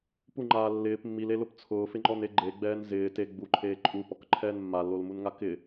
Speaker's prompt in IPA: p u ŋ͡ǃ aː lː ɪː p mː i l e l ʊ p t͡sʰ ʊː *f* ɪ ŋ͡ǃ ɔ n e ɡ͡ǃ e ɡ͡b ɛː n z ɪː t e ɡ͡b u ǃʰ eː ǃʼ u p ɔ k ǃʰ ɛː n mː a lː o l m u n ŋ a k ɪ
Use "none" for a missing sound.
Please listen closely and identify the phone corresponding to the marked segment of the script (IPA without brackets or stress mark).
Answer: f